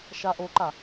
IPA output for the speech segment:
ʃaʔoǃa

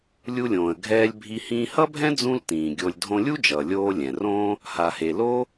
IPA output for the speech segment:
lʲu˧lʲõː˩ə̯ɡʱɛː˧lʲ bʱi˧ hĩː˧hʌ˥bʱɛ̃˥ d͡zũ˥ltĩː˩ɡʲo˧lʲ dʱõ˧lʲu˥d͡ʒʌː˩ lʲoː˧ lʲɛ̃˩rõː˥ | ha˩he˩ lo˥

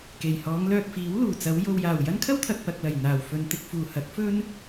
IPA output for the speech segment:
ke˨˩jhɔː˨˧ŋlœː˧k̚fiː˨˥w luː˨˩t͡sɐ˨˧w jo˨wjaː˨˩w jɐ˥nkʰɐ˥wt̪ʰɐ˨k̚ pɐ˨k̚lɐ˨˩j n̪aː˨˩wfɵ˨nt̪ɪ˧k̚ fuː˨˩hɐ˨˥k̚ fɵ˥n

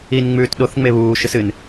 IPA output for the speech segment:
in ŋ͡mʉːtɗoθ ŋ͡meβuː ʃɨsɨn

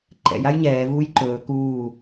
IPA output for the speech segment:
ǃɛ̰j ajɲɛː vuːjǃɵː kuː

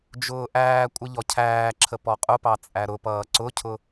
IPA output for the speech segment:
d͡ʒʊːʔæːkʷʼɪ ʎɔcʰæːǁʰə pɔqʼʊpɑ t͡sʼæɾʊpʌː ǀʊcʰʊ

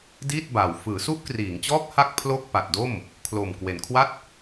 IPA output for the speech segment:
diː˥˩t̚baː˨˩w fɯː˩˦su˦˥ʔkriː˩˦ŋt͡ɕɔː˦˥k̚ ha˥˩k̚pʰlo˥˩k̚ pa˨˩t̚do˥˩m | kʰlo˨˩m kwe˨˩nkʰwa˥˩t̚

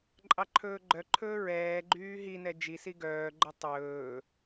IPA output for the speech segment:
ǃʼɑǃʰɵːɡ͡ǃœǃʰɵː ɹɛːɡ͡ǃyː ɦi nɛd͡ʒisi ɡœːɡ͡ǃɵ tˤɵː

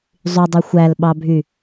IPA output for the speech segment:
zˤydˤy xʷælɓɑbʱy

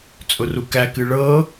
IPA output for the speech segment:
t͡sʼʊrukækɨ ɭɤ

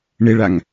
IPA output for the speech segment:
ɳɪɭaŋ

